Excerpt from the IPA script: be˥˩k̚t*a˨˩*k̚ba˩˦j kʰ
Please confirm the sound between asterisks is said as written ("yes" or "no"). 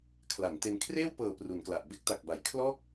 yes